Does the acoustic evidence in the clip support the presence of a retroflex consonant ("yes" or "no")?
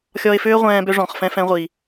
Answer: yes